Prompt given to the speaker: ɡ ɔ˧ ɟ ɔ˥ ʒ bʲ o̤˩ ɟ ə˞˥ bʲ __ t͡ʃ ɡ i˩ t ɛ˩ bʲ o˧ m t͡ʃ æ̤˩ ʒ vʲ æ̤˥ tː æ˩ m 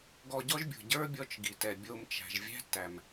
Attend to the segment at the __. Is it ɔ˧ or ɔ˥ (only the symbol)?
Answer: ɔ˧